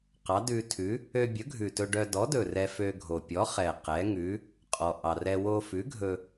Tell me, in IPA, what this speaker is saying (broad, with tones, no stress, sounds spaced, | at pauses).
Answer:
q ɑ˨˥ d ʉ˧ tʰ ʉ˨˥ | ø˧ bʲ ɵ˨˥ ɡʱ ʉ˨˩ t ɵ˧ ɖ œ˧ d ɔ˨˥ d ɵ˨˩ r ɛ˧ f ø˧ ɡʱ o˨˩ pʲ ɔ˨˥ χ ɛ˨˩ q ɛ˨˥ ŋ ʉ˨˥ | qʼ ɔ˨˩ ʔ ɑ˨˩ r ɛ˧ w o˧ f ʉ˨˥ ɡʱ ɵ˧